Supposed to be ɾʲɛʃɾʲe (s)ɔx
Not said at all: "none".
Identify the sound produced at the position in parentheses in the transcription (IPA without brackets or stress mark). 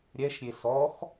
s